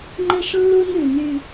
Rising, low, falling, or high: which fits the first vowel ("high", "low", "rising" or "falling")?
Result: high